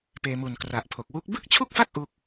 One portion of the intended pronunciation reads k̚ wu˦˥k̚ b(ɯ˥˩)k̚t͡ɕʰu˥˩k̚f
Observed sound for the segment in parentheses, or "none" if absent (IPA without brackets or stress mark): ɯ˥˩